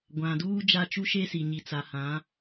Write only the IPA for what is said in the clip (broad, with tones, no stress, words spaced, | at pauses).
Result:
ɡʷã˨duː˦ d͡ʒa˦t͡ʃu˦ʃe˦si˨ ɲi˨t͡sa˨hã˨˦